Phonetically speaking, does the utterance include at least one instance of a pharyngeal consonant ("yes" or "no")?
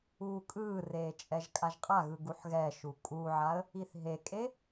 yes